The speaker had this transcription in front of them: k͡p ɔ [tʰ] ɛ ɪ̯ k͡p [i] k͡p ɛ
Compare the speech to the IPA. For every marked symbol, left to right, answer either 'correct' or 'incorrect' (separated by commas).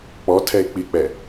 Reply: correct, correct